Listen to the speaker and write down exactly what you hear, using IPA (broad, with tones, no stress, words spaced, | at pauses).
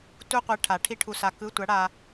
tu˥qʷɛ˧˥ ʈʰa˨˩˦ʈʰi˥ ʈʰu˧sa˧ kɯ˧˥˧tʷa˧˥ɽa˧